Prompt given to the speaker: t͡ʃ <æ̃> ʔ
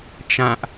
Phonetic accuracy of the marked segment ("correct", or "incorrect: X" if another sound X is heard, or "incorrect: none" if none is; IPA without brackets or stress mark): incorrect: ã